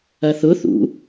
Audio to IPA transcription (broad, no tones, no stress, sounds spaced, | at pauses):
ɐ θ ʊ θ ṵ